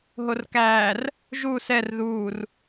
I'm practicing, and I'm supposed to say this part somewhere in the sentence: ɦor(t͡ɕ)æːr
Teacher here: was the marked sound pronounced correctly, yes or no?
no